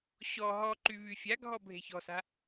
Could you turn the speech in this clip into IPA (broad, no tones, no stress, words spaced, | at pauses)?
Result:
ɕɔ ɦɔǃy βyfʲaɡʱɔ bʱe̤çɔ̤sa̤